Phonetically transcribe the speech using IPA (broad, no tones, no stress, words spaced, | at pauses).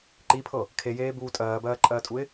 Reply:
ǃipʰɤ | kʰejeːbuː tʼɜːbɜːǃʼɜːtʼuɪ̯